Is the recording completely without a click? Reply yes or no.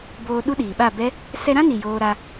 yes